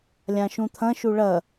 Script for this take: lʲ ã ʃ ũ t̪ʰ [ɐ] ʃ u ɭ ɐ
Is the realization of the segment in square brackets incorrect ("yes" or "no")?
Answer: yes